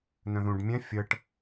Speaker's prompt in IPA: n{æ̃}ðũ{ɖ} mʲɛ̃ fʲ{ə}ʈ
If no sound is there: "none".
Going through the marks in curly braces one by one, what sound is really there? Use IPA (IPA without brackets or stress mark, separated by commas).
œ̃, ɖ, ə